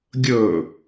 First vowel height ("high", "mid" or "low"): mid